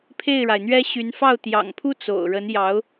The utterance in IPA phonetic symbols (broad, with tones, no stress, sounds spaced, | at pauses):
pʰ e˥˩ ɪ̯ ɻ a˩ ɪ̯ n̪ ɥ ɛ˥ ɕ y˧˥ n f ɑ˥˩ ʊ̯ t̪ j ɑ̰˨˩ ŋ pʰ u˥ t͡s o̰˨˩ ʊ̯ ɻ ə˧˥ n j ɑ˧˥ ʊ̯